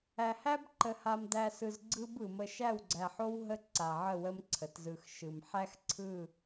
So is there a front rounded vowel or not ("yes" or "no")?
no